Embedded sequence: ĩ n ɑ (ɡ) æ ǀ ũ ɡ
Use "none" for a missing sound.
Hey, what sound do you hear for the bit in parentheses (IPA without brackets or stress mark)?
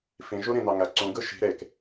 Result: ŋ